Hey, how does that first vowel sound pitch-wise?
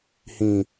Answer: low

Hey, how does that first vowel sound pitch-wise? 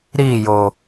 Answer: falling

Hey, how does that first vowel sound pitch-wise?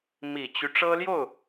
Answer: low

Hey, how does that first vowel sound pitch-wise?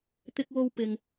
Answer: high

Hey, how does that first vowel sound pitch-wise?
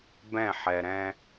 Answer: falling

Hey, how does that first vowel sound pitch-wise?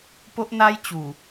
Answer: high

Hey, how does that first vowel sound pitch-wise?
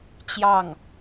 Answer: falling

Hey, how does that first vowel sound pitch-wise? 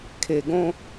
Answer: low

